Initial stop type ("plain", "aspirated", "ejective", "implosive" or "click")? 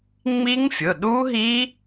implosive